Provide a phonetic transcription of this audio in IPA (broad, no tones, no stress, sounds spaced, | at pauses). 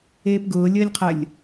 eː p ɡ ʊː lʲ əː lʲ qʰ ə lʲ